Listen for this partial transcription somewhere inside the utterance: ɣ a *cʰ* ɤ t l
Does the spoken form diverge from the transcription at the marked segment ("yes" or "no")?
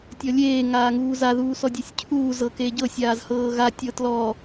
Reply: yes